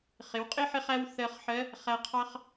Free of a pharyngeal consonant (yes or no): no